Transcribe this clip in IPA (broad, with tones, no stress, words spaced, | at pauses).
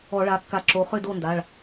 ɔ˧˩˧ɭa˩˧˩kːa˧˩˧ǁo˩˧˩ χʏ˥˨do˥˨nda˩˧˩ɭ